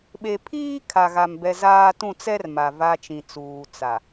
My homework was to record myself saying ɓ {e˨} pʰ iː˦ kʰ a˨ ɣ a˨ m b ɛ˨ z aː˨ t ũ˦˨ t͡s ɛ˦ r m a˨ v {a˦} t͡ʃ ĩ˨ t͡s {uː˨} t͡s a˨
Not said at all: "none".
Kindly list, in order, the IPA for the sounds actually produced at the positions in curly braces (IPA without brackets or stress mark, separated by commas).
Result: e˨, a˦, uː˨